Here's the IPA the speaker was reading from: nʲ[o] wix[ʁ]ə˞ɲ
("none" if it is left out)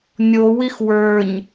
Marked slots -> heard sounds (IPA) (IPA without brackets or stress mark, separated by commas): o, w